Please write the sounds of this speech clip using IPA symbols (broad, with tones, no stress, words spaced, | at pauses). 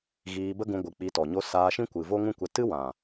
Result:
ɣiː˧ bə˦ɡũ˧ɡʷɨ˨ k͡pi˧tɔ˨ɲo˦ saː˧ʃĩ˦kʷɨ˨ vo˦ŋũ˦ kʷɛ˧ tɨ˦wã˨